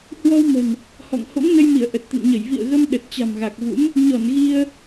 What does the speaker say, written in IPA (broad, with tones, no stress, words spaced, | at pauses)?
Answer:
hwɔ˧w mə̤˨˩n | hɔ̰˧˨ŋ ho̰˧˥ŋnə˧jmi˧˩ə̯ ʔə˨˩t̚t̪ə̰˧˨nɲə˧˩j vḭ˧˨ə̯ɣə˧m ɗə˨˩t̚t͡ɕa̤˨˩mɣa˨˩k̚vṵ˧˥m | ɲɔ˧˩nɣi˧ə̯